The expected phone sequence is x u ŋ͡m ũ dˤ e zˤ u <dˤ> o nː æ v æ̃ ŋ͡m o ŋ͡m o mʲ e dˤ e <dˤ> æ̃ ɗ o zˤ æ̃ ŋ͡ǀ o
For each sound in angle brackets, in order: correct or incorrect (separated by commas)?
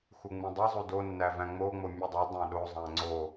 incorrect, correct